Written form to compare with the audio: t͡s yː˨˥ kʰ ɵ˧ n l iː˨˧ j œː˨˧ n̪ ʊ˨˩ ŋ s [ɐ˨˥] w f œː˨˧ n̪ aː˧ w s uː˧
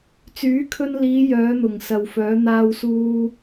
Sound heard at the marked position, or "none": ɐ˨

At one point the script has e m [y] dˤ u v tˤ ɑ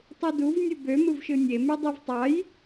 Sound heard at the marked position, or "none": y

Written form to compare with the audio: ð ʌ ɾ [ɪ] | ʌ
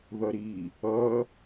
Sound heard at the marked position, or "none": i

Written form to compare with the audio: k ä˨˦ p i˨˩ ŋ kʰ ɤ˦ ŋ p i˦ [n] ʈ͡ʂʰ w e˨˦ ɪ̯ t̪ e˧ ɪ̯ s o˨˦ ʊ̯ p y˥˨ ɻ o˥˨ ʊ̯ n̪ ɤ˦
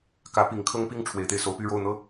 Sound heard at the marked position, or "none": ŋ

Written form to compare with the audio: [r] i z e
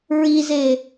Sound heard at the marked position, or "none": ɹ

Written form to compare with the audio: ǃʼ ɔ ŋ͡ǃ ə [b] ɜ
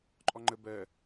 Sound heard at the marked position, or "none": b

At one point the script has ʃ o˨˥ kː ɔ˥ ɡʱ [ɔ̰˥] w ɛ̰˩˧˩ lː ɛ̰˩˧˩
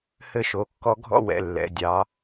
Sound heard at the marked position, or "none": ɔ̰˥˧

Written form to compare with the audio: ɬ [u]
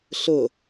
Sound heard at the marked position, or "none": ʊ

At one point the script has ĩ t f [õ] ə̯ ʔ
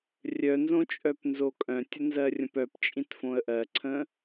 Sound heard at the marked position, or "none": õ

